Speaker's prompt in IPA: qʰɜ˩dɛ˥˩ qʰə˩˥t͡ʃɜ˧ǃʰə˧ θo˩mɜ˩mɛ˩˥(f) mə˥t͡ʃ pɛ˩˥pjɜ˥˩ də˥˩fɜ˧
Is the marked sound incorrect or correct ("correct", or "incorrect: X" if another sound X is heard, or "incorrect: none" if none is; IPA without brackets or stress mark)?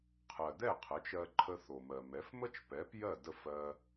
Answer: correct